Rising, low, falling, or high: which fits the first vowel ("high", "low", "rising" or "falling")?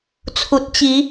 low